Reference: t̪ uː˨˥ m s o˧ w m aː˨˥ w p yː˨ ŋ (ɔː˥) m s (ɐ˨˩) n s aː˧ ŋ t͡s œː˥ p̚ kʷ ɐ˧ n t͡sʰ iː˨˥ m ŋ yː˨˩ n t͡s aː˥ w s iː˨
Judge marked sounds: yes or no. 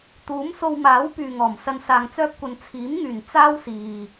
no, no

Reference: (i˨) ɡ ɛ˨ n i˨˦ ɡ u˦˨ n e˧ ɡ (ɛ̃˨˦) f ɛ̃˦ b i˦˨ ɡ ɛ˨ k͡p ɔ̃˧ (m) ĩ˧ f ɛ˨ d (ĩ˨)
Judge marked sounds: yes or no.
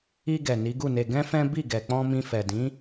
no, no, yes, no

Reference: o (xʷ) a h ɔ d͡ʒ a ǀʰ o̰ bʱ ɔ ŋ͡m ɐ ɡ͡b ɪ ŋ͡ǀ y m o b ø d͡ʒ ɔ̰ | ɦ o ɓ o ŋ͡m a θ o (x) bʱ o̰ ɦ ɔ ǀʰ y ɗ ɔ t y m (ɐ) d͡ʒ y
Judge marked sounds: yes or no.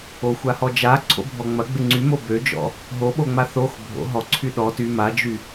yes, yes, no

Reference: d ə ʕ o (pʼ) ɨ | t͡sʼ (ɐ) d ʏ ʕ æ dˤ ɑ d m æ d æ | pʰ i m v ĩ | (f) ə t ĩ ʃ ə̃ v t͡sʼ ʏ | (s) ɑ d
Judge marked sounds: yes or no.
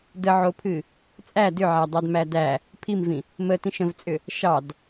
no, no, no, no

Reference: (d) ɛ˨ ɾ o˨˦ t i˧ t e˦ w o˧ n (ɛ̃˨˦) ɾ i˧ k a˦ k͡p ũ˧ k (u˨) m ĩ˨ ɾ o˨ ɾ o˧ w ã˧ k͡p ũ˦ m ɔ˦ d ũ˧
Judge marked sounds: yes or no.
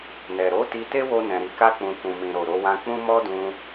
no, no, no

